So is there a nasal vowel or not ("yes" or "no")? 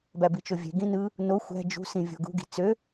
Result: yes